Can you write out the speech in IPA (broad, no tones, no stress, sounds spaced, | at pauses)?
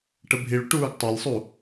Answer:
ʈ ə bʱ i ɭ u ʈ uː ɡ tˤ a lʲ sˤ u